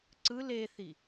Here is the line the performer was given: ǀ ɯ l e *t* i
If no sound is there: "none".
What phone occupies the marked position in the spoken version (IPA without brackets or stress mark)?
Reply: θ